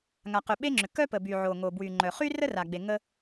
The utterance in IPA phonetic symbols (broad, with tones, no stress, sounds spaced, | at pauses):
ŋ a˩ q ʏ˩ ɓ e˥ ŋ͡ǁ ʏ˩ k œ˥ p ə˩ b y˩ ʕ o˩ ŋ o˩ b w y˩ ŋ͡ǃ œ˩ χ y˥ r ə˥ r a˩ ɡ͡b e˩ ŋ ə˥